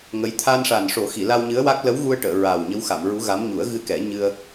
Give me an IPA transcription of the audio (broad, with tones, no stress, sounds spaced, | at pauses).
ŋ ə˧˥ j t̪ʰ a˧ n ʂ a˨˩ n ʂ o˨˩˦ x i˨˩˨ l a˧ w ɲ ɨ˧˥ ə̯ w a˦˥ k̚ l ə˧˥ w ɣ u˧ ə̯ ʈ əː˨˩˨ ɹ a˨˩ w ɲ ə˧˥ w x a˨˩˨ m ɹ u˧˥ ɣ a˧˥ m ɲ u˨˩˦ ə̯ ɣ ɨ˧ k ɛ˨˩˦ ɲ ɨ˧ ə̯